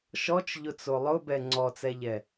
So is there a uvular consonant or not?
no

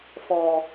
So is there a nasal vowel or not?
no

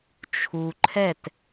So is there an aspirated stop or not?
yes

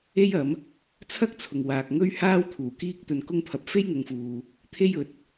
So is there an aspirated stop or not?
yes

